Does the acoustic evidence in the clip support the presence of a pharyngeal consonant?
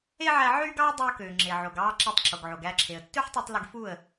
yes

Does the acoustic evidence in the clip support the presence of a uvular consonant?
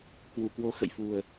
no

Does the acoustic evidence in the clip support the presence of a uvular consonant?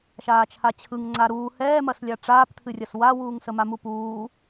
no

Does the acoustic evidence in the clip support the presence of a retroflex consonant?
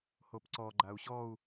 no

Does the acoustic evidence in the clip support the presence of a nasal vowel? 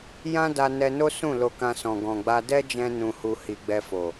yes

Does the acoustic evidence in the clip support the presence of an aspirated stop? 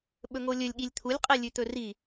yes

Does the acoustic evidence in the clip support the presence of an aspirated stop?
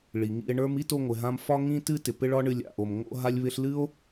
no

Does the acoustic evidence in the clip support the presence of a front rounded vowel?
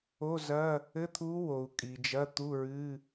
no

